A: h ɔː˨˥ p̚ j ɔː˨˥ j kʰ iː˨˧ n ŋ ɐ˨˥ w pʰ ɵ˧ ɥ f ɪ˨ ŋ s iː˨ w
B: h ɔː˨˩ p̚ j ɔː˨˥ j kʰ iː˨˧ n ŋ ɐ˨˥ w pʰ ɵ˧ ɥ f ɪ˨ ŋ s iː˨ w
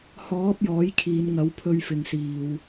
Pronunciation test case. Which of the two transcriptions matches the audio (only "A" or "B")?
A